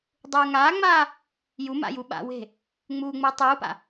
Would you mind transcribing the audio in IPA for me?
dˤuːŋaːŋ͡maː | juma̰ju ɓa̰we̤ | ŋ͡muːŋ͡mɯː tˤuːpa̰

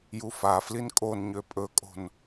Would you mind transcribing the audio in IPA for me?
jufaflin kʼonɲø pʼɵkʼo̤n

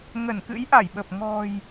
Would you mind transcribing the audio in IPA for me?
ŋə˧˩nkɨ̰˧˥jʔa˧˩jɓə˨˩p̚ ŋɔ̤˨˩j

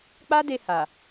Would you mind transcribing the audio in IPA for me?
k͡pa˦de˧ ha˨

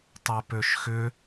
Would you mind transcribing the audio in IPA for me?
tˤɛpøʃxʏ

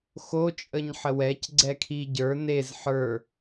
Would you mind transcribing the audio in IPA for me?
xo t͡ʃʼəɲħəwɛc ɡ͡ǀɛkʰiɟə˞ nez ħə˞

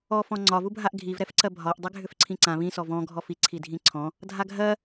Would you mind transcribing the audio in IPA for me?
ɔ fɔ̃ŋ͡ǀɒ vubʱaʔɡʱiv ɾɛfǀɜbʱɒʔ dˤɛɡʱʏfǀʰĩǀã βĩ sɔvɔ̃ ɡʱɔfi ǀʰidʱĩǀʰɔ̃ | dʱaɡʱɜ

